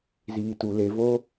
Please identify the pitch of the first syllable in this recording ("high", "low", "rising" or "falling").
low